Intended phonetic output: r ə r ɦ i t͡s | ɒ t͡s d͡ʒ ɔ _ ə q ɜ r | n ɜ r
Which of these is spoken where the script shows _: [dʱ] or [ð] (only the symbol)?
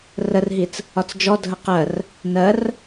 dʱ